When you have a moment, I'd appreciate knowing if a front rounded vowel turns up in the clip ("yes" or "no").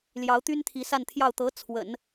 yes